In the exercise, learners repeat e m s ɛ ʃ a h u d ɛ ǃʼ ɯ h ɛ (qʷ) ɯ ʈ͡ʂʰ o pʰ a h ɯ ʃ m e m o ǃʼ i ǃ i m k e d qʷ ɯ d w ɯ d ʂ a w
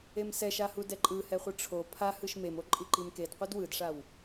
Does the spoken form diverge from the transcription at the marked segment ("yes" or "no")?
yes